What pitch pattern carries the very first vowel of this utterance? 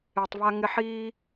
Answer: low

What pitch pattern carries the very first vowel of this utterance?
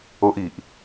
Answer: high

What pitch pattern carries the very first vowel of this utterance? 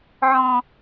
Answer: high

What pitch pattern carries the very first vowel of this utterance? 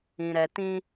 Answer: low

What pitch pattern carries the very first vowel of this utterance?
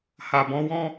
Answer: low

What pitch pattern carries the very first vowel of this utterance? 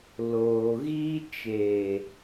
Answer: low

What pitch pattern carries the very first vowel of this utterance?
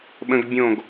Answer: high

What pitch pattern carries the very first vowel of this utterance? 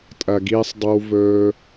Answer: low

